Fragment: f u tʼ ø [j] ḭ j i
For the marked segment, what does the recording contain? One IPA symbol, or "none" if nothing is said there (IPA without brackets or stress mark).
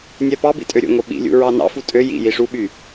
j